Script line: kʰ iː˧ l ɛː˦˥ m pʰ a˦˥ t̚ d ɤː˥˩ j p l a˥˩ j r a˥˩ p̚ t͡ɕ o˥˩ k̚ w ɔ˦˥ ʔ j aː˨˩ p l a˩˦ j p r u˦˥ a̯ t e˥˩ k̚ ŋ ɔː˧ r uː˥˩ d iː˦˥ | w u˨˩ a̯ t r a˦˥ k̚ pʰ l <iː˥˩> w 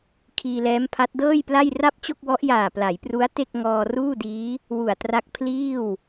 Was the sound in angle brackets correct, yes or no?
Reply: yes